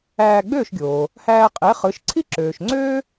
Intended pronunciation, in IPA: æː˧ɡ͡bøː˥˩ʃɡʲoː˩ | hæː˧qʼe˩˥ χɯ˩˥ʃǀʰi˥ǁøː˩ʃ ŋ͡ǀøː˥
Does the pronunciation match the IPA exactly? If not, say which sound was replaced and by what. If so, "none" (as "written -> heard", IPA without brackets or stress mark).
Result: none